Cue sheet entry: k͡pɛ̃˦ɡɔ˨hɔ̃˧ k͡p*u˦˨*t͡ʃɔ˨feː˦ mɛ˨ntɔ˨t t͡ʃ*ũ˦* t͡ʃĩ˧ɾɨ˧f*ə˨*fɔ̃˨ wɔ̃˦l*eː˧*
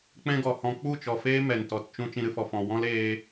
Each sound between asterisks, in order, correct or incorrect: correct, correct, incorrect: ɔ˨, correct

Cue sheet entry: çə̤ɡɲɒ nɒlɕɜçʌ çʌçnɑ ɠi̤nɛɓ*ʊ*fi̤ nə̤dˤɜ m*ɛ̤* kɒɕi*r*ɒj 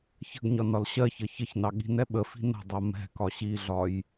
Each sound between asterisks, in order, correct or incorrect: incorrect: ə, correct, incorrect: ɮ

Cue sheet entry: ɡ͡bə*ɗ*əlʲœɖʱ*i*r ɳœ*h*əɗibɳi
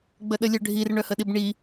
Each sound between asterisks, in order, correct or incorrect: correct, correct, correct

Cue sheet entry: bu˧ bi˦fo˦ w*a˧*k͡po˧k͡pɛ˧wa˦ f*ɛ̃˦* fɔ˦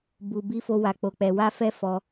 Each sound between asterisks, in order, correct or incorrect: correct, incorrect: ɛ˦

